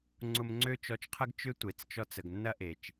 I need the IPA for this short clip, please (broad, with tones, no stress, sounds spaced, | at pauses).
ŋ͡ǀ ʊ˧ m ŋ͡ǀ ø˦ t͡ʃ ɔ˧ t͡ʃ qʰ ɐ˦ ɡ t͡ʃ ʏ˦ tʷ e˨ t͡s t͡ʃ ɔ˧ t͡s ə˨ ɡ nː ɐ˦ ʔ e˨ t͡ʃ